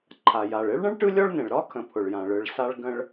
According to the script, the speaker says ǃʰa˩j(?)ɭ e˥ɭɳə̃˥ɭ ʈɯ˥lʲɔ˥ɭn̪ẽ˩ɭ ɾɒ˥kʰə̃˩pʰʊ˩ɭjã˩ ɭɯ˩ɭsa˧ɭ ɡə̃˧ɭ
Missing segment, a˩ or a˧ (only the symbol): a˩